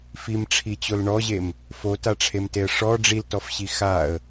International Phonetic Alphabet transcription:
f i m ʈ͡ʂʰ i t͡ɕ o l ɳ ɔ ʑ e m | f o t a ʈ͡ʂʰ e m t e ə̯ ʂ ɔ ɖ͡ʐ i l t ɔ f ɕ i x a ə̯

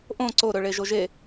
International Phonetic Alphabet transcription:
ʔ õ ǀ o ɾ ɵ ɭ e ʒ o ʒ e

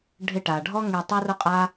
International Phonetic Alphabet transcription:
ɖʱ ɪ˧ ʈ a˨ ɖʱ ɔ˦ ŋ e˧ tˤ a˦ r ʊ˦ qʼ a˦

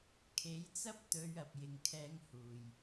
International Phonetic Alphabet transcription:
kʰ e˨˥ j t͡s ɐ˥ p̚ t̪ ɵ˨˧ ɥ ɐ˨ p̚ j ɪ˨ ŋ kʰ ɛː˧ ŋ h uː˨˩ j

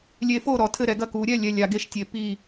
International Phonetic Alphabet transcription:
lʲ e˨˩˦ f o˧˩ ɾ ɔ˨˩˦ tʰ ɘ˧˩ ɾ ɛ˨˩˦ ɡ ɐ˧˩ k u˨˩˦ ɾʲ ɛ˧˩ lʲ ɛ˧˩ lʲ a˨˩˦ ɡ e˧˩ ʃ tʲ e˨˩˦ p i˧˩

